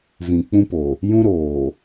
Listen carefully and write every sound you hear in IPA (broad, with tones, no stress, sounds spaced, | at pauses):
v ĩ˨ k͡p ũ˦ p o˨ | j ũ˦ ɾ oː˨